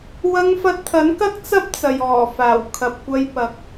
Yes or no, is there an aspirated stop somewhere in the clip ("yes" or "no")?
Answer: yes